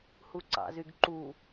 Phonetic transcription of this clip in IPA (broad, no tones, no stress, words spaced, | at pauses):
huǀɑ̰zyɡǃu